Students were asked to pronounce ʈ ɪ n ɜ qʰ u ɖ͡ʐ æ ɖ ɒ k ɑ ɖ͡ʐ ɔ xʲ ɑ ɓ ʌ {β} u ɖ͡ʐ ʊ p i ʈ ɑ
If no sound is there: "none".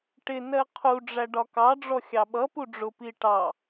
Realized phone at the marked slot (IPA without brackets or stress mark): p